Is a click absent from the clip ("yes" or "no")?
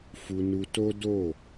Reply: yes